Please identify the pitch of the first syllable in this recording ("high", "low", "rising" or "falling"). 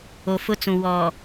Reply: low